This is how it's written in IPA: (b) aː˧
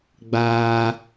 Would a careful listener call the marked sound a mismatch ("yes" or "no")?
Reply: yes